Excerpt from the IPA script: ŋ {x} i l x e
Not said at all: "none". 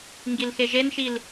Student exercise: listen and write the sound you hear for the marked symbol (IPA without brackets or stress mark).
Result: ɡ